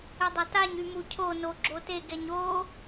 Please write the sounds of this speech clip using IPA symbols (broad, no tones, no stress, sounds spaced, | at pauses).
ɘ dˤ a t a ɲ y m u cʰ o n o ɡ͡ǁ o t e ɡ ɛ ɲ o